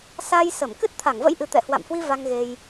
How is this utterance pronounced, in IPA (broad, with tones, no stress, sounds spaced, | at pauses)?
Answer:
s a˧ j s ə˧˩ m k ɨ˦˥ t̚ t̪ʰ a˧˩ ŋ v ə̰˧˥ j ʔ ɨ˨˩ t̪ ɛ̰˧˨ h w a̰˧˨ m h w i˧ v a˧ ŋ ɣ e˧ j